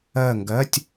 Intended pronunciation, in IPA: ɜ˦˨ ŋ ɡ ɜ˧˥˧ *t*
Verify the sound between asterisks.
incorrect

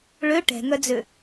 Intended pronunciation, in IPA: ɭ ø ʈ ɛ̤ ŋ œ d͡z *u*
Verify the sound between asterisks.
incorrect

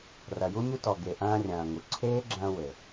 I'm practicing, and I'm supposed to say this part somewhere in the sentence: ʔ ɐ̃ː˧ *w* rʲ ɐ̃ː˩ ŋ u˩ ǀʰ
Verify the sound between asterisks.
incorrect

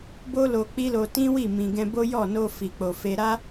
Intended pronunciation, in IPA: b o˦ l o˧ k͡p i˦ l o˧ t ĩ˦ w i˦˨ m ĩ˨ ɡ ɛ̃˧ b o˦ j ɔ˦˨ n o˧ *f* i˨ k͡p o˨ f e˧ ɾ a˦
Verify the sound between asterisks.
correct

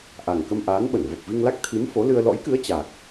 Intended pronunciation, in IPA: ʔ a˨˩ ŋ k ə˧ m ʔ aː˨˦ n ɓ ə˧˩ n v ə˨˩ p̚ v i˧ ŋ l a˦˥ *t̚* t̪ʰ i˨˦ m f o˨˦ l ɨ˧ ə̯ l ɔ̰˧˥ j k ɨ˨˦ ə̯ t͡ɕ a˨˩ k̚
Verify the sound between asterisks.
incorrect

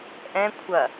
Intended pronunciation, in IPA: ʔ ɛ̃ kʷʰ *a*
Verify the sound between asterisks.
incorrect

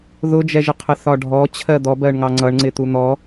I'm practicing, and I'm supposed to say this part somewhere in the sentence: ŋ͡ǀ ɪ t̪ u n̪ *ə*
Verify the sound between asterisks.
incorrect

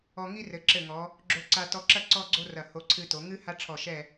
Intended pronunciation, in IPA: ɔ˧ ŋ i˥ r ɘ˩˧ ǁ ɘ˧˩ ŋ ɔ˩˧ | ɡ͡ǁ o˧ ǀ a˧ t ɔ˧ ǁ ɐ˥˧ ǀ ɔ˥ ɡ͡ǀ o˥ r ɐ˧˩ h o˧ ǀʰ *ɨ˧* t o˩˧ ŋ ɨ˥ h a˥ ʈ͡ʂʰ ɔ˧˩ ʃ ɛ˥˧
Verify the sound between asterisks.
correct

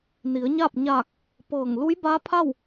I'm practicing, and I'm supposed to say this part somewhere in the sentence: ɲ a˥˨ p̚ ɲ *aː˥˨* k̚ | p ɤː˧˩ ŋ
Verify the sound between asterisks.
incorrect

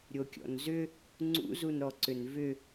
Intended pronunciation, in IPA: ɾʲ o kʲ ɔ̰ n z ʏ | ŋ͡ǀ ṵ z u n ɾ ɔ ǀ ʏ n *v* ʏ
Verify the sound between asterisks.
correct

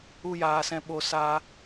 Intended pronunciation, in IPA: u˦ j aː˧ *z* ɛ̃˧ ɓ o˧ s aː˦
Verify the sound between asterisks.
incorrect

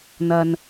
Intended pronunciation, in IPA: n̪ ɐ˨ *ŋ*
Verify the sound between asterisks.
incorrect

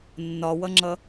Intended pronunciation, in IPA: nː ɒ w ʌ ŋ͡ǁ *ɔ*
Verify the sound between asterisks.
incorrect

